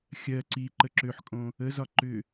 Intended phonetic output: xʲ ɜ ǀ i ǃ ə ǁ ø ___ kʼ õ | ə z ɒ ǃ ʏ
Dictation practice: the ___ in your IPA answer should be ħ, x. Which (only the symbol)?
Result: ħ